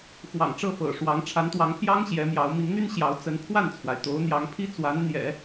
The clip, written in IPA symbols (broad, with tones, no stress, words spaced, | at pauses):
xwɑ̰˨˩ŋʈ͡ʂɤ˥˩fɤ̰˨˩ʂwɑ˧˥ŋ ʈ͡ʂʰa˧˥nt̪wɑ˧˥ŋpʰjɑ˥ŋ ɕjɛ˧˥mjɑ˧˥ʊ̯ mi˧˥ŋn̪y˥n ɕjɑ˧˥ʊ̯t͡sə˧˥n pʰwa˥˩nt͡sʰwa˩ɪ̯ t̪o˧˥ʊ̯n̪jɑ˧˥ŋpʰi˥t͡swa˧˥n n̪jɛ̰˨˩˦